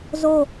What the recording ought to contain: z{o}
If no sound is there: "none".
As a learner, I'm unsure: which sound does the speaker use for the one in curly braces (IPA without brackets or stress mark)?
o